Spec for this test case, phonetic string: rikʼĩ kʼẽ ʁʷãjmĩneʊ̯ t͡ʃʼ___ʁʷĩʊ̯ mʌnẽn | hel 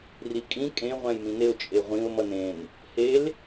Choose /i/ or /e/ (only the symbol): e